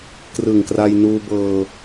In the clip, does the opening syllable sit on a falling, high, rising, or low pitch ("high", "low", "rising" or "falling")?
low